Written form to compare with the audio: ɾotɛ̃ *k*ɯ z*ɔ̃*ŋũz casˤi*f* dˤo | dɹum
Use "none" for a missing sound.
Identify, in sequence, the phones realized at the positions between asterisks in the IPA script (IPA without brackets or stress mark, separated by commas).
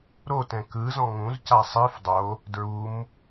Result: k, ɔ̃, f